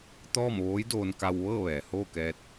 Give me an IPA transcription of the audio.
t̪ ɔː˥˨ m ʋ oː˧˥ j d oː˧ n k a˧ w ʋ ɤː˥˨ ʋ ɛː˩ h oː˥˨ k ɛː˧ t̚

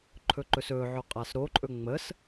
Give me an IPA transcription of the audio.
ǃʰ ɵ ǃ ɵ s ɵ ʕ ɵ qʼ a s ɾ o ǃʼ ɵ ŋ͡m ə s

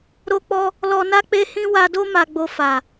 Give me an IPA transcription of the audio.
ɾ o˦ k͡p ɔ˦ | l ɔ˧ n a˦ k͡p e˦ h ĩ˦ w a˧ d o˦ m a˧ ɡ͡b o˧ f a˨

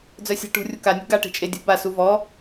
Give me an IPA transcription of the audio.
d͡z œ sʲ a̤ ʈ ṳ rʲ u k a nʲ ṳ ɡ a ʈ e̤ t͡ʃʼ e dʲ ṳ b a s u v ɔ

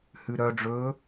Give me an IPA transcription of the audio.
h ʉ ɾ œ ɖ͡ʐ ɵː

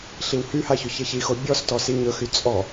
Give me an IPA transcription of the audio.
ɬ i w h y h a ç ɵ ç e ç i x o bʲ ɔ s t ɔ s i ɲ ɵ x y t͡sʼ ɔ

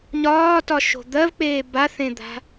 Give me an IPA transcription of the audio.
ɲ ɒː t ɒ ʃ o̤ d̪ ɜ v k͡p eː b a θ ẽ d̪ a̤

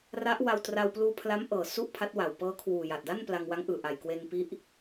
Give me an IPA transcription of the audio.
r a˦˥ ʔ w a˧ w t r a˧ w p l uː˧ pʰ l a˦˥ m ʔ ɤː˨˩ s u˥˩ ʔ pʰ a˦˥ t̚ w a˨˩ w p ɤː˦˥ kʰ w uː˨˩ j a˨˩ t̚ d a˥˩ n p l a˧ ŋ w a˦˥ ŋ ʔ ɯː˨˩ ʔ a˨˩ j k w e˧ n p i˦˥ ʔ

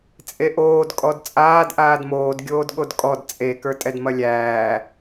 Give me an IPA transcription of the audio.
t͡sʼ e ʔ oː d kʼ ɔ d t͡sʼ aː d ʔ aː d m oː d ɡʲ oː d ɠ o d kʼ ɔ d t͡sʼ e k ə˞ tʼ ɛ d m ɐ lʲ æː

